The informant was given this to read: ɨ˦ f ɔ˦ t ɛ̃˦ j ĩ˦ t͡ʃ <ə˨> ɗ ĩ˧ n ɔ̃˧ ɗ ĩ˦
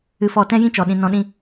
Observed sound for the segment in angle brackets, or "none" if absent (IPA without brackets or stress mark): ɔ˨